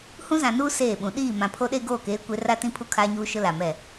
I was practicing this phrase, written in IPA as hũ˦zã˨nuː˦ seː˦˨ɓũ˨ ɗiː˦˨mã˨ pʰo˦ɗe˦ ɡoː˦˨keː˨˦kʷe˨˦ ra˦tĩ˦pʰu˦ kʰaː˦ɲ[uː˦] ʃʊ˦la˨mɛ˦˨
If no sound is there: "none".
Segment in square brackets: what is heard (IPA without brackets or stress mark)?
uː˦